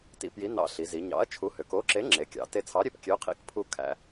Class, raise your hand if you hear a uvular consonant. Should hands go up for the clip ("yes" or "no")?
yes